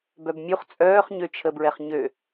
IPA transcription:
b œ b mʲ u χ t͡sʼ œː χ ɲ ø t͡ʃʰ ə b ɹ ɛ χ ɲ ø

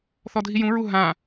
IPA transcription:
θ ɔ dʱ i j ũ ɹ u ɦ ã

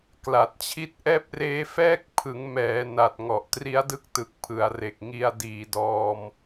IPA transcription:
k l a˨˩ t̚ t͡ɕʰ i˥˩ t̚ ʔ ɛː˥˩ p̚ r eː˦˥ f ɛː˥˩ k̚ pʰ ɯ˩˦ ŋ m ɛː˩˦ n a˨˩ t̚ ŋ ɔ˨˩ ʔ t r i˦˥ a̯ d ɯ˥˩ k̚ t ɯ˨˩ k̚ pʰ ɯ˩˦ a̯ r e˨˩ k̚ ŋ i˧ a̯ d iː˨˩ d ɔː˧ m

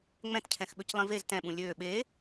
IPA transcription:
ŋ͡m ɛ̃ t cʰ ɛ̃ x ɓ ø c lˠ ĩ v e z t ɛ̃ ɓ ũ lʲ øː ɓ eː

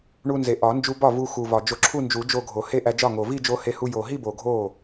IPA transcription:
ɳ u˧ n z e˨˩ ʔ ɒ˨˩˦ n d͡ʒ u˧ b ɒ˥˩ v u˧ x u˨˩ v ɒ˨˩ d͡ʒ o˧ ǁʰ u˥˧ n d͡ʒ u˨˩˦ d͡ʒ o˥˧ ɡʱ o˨˩˦ h e˥˧ ʔ æ˧ d͡ʒ ɒ˥˩ ŋ o˨˩ v i˥˧ d͡ʒ o˧ h e˧ h u˧ j o˨˩ ɦ i˥˧ b o˨˩ ɡʱ o˥˩

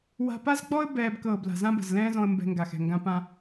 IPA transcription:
w a̤˧ p a˦ z ɡ͡b ɔ˦ ə̯ b ɛː˧ b k ɤː˨ b l a̤˨ z ã˧ b ə̤˨ z l ɛ̃ː˦ z ɔ̃˧ ə̯ m b ɛ̤˧ ŋ ɡ a˨ x ɛ̤˨ ŋ ɡ ã˧ p ã˧

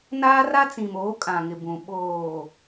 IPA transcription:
n aː˦ r a˦ t͡s ĩ˨ m oː˨˦ kʼ ã˨ ŋ ɪ˨ b ũ˨ ɓ oː˨

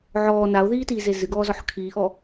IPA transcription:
ʕ ɔː n a o̯ ð iː t iː z e z ɨ ɡ ɔː z ɔ ħ kʰ iː ʔ ɔ

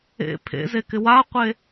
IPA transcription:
ḛ pʰ ḛ z e k ɪ w a qʷ e

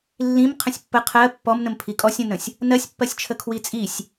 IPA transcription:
lː ĩ m qʰ ə̃ sʲ pː ə qʰ ɜ pː ɔ m n ə̃ m pʰ i kʼ ɔ sʲ ə̃ n ə̃ sʲ | n ɜ sʲ pː ɜ sʲ t͡ʃʰ ə kʰ w i t͡sʼ i sʲ

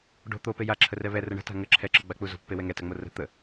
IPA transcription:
ɖ o̤ t̪ o p e j a ǁʰ ə r ɛ β ɛ r ə ɳ ə̤ t a̤ ŋ ə ǁʰ ɛ ǁ ə˞ ɡ͡b a k͡p u z o̤ pː e w ɛ ŋ ɛ t a ŋ͡m o r ə̤ t̪ ə

